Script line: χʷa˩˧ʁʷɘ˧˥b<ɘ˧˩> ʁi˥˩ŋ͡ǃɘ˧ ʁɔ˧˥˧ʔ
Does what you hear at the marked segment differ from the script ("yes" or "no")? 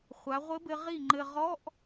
yes